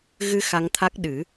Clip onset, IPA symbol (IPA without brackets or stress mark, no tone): ɣ